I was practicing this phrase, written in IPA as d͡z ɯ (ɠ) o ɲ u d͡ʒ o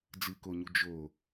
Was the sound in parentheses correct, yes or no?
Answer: no